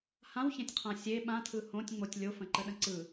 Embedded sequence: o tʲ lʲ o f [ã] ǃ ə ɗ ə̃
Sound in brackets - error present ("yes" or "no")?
yes